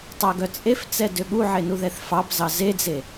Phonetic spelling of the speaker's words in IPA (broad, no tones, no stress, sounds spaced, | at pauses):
tˤ æ ɡ œ t͡sʼ e f t͡s ɛ d ø ɠ u ʕ e n u ð ɛ θ f ɑ p z ɑ z e d͡z e